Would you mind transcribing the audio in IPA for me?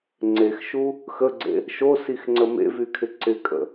ŋ͡ǀexʃu | xəɡ͡ǀḛ | ʃosixŋ͡ǀə mḛvykʰɪ ǀɪkʼə̰

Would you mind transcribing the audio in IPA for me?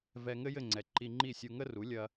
vɛ˧ŋɘ˥jɘ˥˩ŋ͡ǀɛ˩ ǃi˧ŋ͡ǃi˥˩sʲu˧ ŋə˥ru˩˥lʲɐ˧

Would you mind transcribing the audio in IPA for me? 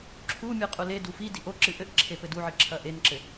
ǁʰumʲɨ qʼuledu fi diʔoǁɨ ʔɘʔǁʰe pɘduʕɨ ǁʰɐʔenǁɘ

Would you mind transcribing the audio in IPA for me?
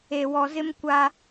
e˨wɔ˨zɪ˦m kʷa˦

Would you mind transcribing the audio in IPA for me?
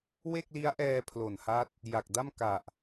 we˥˩k̚li˦˥a̯ʔɛː˧ pʰlo˨˩nha˦˥t̚ | ja˨˩k̚da˥˩m ka˨˩ʔ

